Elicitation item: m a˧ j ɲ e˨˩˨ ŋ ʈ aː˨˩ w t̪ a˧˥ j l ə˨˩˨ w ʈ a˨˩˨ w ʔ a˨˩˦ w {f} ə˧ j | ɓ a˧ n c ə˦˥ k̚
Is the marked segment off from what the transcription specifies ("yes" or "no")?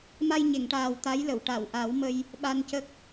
yes